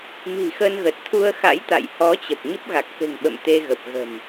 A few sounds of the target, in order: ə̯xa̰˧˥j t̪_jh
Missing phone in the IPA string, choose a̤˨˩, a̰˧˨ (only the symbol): a̰˧˨